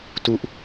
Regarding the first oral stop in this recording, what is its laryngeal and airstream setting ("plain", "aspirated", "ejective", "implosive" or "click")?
plain